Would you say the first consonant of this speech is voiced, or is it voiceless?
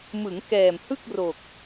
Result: voiced